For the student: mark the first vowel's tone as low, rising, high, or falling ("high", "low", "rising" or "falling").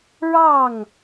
falling